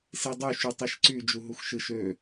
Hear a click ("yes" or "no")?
yes